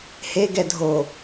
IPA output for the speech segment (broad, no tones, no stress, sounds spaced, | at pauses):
h e ɡ ɛ dʱ o